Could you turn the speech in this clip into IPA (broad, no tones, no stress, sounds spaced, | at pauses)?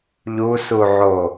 ʎ u s u ʕ o